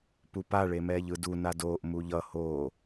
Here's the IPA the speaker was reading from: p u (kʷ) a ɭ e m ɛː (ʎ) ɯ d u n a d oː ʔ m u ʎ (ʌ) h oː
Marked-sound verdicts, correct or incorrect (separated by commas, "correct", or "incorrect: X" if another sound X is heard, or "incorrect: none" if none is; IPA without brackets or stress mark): incorrect: p, correct, correct